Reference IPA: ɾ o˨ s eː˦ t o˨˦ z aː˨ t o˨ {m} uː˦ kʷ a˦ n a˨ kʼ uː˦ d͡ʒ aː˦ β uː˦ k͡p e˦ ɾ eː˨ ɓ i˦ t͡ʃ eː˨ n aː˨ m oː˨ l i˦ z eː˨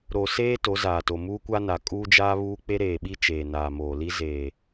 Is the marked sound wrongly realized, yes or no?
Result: no